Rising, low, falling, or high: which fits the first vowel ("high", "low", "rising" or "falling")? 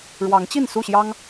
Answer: rising